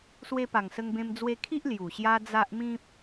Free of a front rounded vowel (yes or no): yes